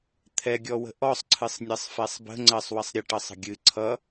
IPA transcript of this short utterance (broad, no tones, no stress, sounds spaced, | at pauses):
t̪ʰ ɛ ɡʲ ɔ w ə̤ ʔ ɔ sˤ ǀʰ ɨ sˤ nʲ ɜ sˤ f ɛ sˤ b ə̤ ŋ͡ǀ ɜ sˤ w ə sˤ ɾʲ ə ʈ ʌ sˤ ə̤ ɡʲ ɨ ǀʰ ʌ